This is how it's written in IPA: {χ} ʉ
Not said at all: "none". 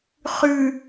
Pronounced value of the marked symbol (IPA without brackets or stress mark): χ